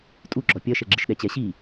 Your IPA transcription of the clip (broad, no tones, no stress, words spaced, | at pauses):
tʼuɡ͡ǁɔ pʲɐʃɛɡ͡ǁɨʃ ɗɛt͡ɕɛɕi